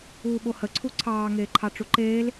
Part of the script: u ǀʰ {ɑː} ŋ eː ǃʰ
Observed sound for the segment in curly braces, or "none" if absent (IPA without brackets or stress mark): ɑː